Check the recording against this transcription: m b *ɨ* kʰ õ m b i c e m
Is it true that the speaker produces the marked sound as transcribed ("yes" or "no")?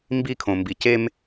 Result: no